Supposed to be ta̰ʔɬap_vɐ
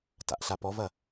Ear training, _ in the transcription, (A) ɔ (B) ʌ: A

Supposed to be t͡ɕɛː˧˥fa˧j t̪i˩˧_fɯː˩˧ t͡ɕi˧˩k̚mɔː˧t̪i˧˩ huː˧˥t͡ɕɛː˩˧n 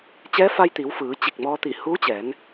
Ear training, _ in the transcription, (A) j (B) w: B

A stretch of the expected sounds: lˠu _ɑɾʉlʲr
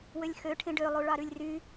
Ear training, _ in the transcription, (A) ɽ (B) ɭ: B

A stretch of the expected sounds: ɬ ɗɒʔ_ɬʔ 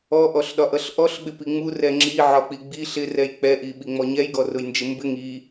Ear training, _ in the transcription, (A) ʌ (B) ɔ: A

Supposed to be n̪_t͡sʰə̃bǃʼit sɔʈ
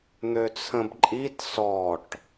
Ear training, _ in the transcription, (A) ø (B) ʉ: A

